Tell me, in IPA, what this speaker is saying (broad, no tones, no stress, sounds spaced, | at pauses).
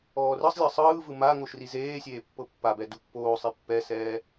ɔː r ɯ sˤ lʲ ɤ sˤ ɯː v ɯ m a ŋ o ʃ r i z eː sʲ eː pː ɤ pː a b ɛ d u pː oː sˤ i pː ɛ s ɛː